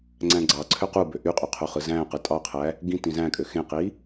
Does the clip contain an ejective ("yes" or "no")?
yes